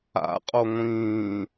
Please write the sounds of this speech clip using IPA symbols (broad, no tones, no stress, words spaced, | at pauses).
a̰ qʼoŋʷĩː